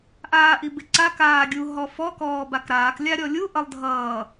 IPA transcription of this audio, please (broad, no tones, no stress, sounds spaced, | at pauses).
ʔ aː ʔ i b ɪ ǀ a k aː ɡʲ u ɦ ɔ f ɔ k ɔː b a k ɾ aː k lʲ a ɾʲ ɔ lʲ u ʔ ʌ lˠ dʱ ʌː